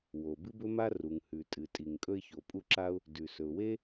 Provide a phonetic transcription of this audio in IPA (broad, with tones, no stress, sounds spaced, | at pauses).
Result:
w o˩ b ɨ˥ b ɵ˥ m a˥ r u˩ ŋ h ʉ˩ tʼ ɨ˩ tʼ i˩ ŋ kʼ ɵ˥ ɪ̯ ç o˩ pʼ u˥ ǁ a˥ ʊ̯ | d ʉ˩ s ɵ˩ ʊ̯ w e˥